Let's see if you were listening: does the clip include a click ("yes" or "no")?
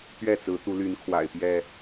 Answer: no